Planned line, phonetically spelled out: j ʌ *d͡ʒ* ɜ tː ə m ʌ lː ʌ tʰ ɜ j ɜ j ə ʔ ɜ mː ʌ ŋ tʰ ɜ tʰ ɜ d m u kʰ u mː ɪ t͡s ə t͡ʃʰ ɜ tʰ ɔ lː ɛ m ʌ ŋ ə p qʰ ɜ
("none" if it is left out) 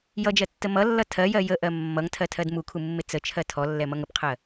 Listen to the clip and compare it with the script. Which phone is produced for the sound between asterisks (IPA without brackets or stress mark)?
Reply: d͡ʒ